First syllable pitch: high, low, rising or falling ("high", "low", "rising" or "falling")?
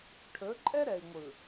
rising